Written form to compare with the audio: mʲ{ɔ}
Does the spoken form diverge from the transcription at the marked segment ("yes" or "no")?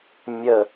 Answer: yes